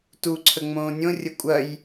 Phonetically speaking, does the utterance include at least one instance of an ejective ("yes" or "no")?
yes